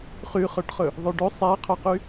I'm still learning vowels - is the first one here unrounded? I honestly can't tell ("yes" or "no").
no